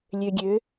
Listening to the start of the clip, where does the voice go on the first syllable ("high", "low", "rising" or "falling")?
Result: low